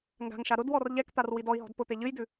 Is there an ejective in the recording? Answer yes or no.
no